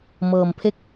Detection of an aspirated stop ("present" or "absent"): present